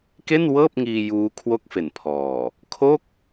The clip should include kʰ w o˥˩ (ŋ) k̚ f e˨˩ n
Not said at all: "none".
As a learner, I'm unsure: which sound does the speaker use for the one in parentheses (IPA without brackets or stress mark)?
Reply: none